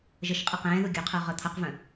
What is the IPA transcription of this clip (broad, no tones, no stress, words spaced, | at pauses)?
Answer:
ʒəʃqʼə qɛ̃ːðu ɡʲɵqʰɤ ʁɤt̪ʰʌqvœ̃